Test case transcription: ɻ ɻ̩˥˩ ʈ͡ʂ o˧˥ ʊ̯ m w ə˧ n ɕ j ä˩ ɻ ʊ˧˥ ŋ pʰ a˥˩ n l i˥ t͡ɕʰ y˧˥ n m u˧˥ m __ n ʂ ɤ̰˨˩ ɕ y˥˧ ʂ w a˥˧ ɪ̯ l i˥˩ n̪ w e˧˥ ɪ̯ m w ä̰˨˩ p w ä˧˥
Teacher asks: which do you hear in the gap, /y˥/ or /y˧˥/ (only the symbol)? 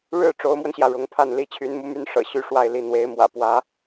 y˥